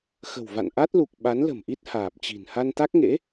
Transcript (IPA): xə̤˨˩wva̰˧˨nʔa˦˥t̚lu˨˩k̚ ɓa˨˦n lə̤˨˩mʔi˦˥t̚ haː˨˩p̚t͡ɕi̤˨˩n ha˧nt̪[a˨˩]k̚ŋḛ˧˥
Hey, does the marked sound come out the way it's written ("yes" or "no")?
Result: no